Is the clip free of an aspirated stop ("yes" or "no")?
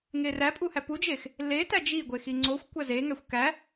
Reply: yes